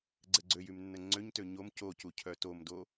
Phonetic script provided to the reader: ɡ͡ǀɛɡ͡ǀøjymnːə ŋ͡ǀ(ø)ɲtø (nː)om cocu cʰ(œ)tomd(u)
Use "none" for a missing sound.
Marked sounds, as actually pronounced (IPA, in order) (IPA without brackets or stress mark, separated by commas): ø, ɲ, œ, o